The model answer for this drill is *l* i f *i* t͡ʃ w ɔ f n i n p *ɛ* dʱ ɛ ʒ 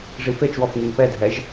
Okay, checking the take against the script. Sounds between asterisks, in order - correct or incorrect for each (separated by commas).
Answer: incorrect, incorrect, correct